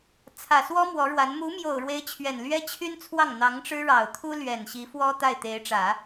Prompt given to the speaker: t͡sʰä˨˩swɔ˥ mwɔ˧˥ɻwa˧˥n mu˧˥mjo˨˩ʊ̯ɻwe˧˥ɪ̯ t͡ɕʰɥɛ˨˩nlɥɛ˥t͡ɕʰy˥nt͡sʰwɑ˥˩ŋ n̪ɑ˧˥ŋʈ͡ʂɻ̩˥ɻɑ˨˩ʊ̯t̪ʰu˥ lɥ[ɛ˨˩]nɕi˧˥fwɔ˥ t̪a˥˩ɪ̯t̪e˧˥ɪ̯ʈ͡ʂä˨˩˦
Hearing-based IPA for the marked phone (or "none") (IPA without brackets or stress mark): ɛ˨˩